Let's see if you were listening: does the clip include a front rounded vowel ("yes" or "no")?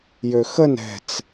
yes